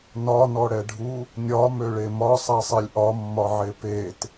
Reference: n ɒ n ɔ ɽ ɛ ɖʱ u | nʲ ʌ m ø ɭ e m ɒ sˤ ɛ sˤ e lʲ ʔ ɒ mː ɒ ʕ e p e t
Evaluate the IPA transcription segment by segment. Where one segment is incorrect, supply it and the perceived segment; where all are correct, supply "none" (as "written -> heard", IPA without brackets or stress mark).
ʌ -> ɒ